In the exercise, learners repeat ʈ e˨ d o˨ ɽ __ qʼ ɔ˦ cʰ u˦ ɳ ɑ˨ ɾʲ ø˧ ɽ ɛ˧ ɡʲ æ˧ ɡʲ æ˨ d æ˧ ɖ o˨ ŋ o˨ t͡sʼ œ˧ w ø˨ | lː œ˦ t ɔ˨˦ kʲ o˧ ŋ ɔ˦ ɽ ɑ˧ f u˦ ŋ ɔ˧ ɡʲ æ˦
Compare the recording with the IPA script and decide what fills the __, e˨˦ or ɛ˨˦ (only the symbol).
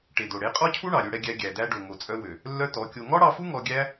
e˨˦